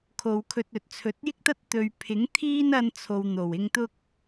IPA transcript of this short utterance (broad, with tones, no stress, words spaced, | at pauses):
kʰo˨˧wkʰɵ˧t̚ɵ˨t̚ t͡sʰɵ˨˥t̚jɪ˥k̚t̪ɐ˥t̚ t̪ɵ˧ɥ pʰɪ˨˥ŋt̪ʰiː˥n ɐ˥nt͡sʰo˧w n̪o˨˩wɪ˧ŋ t̪ʊ˥k̚